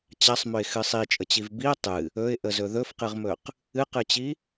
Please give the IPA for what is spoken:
t͡ɕasˤmɵɪ̯xɨ sˤit͡ʃʼət͡ɕiv biə̯ tˤɨ | ɵɪ̯ʔəzɵ ðɵfqɨʁmɵq | ɨqɨt͡ɕi

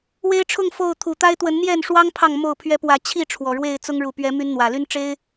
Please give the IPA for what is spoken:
we˦ɪ̯ʈ͡ʂʰʊ˥˨ŋ fo˥˨ʊ̯ t̪ʰu˨˩ t̪a˦ɪ̯t̪wə˨˦n n̪jɛ˥˨nʂwɑ˦ŋ pʰɑ˥˨ŋ mo˥˨ʊ̯pʰɥɛ˦ pwä˨˦ t͡ɕʰi˥˨ ʈ͡ʂʰwɔ˨˩ɻwe˥˨ɪ̯t͡sʊ˦ŋ ɻu˨˩ pɥɛ˨˦my˨˦n n̪wä˨˩ly˦n ʈ͡ʂe˦ɪ̯

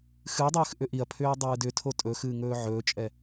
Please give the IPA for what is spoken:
xɨdˤɨːx ʔʏʔiɐ̯pʰʏːɐ̯ dˤɨːdʏtʰo tʼɵ xɨːŋɵːʕɵːt͡ʃʼɛ

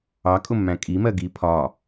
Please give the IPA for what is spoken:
ɑkʼʊmːæ̃ kʼimɜ ɡi pʰɒː

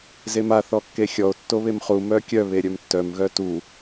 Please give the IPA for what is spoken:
zema θɔkːexʲɔo̯ tːoβemχu mœkʲœ βeɾʲœmtːœm ɣœtu

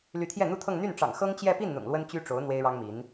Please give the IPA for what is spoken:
ly˧˥t̪ʰjɛ˥˩n̪u˥t̪ʰɤ˥˧ŋ n̪y˥˩nʈ͡ʂɑ̰˨˩ŋ xɤ˥ŋt͡ɕjɛ˥˧ pi˥˩nn̪ʊ̰˨˩ŋ lwə˥nt͡ɕy˥ʈ͡ʂo˧˥ʊ̯ n̪we˥ɪ̯ɻɑ˥ŋmi˧˥n

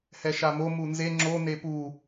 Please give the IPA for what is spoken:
hɛʃamo munze ŋ͡ǁo nepu

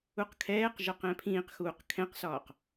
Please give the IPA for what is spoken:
uqkʰɛːqʒɒq ɛ̃pʰĩːqxuːq kʰɛ̃qsɒːq

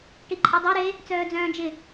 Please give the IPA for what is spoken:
ʈiǃʼedˤo ɾe | t͡sœːd͡zœ̃ːd͡ʒɪ

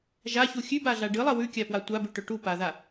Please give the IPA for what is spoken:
ʒaçu xʲʉbaɮa ɖɨlˠɐ wʉkʲapwa tʷabʉʈɵ ʈupaða

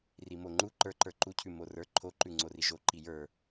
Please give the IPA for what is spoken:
rimoŋ͡ǃu ǃə˞ǃə˞ ǃucʰʉ morə˞ ǃʰoǃʉ ŋ͡ǀoriʒo ǃijə˞

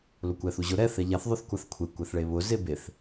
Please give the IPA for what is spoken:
lʊkʷɛθuʑʊ ɾɛ θɛʎaθ ðˤʊθkʷaθkʷʰe kʷɛθɭeβʊ zebeθ

